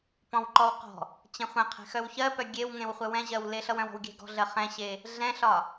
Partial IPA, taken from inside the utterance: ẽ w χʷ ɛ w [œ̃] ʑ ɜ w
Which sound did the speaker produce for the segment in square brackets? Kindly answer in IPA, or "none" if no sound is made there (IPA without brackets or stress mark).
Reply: ɛ̃